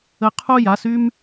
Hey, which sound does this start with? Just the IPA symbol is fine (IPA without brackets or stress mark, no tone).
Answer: ə